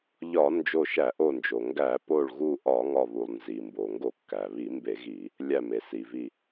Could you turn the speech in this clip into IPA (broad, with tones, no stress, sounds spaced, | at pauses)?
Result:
ʎ ɒ˧˩˧ n d͡ʒ o˧˩ ʃ æ˧˩˧ ʔ o˧˩ n d͡ʒ o˩ ŋ ɡ æ˧˩˧ p o˧˩ ɭ ɣ u˧˩ ʔ ɒ˧˩˧ ŋ ɒ˧˩ β u˩ lˠ n z i˩ m b o˩ ŋ ɡ o˧˩˧ kː æ˩ β i˧˩˧ m b e˧˩˧ ɣ i˧˩˧ | lʲ æ˧˩ m e˩ s i˩ v i˧˩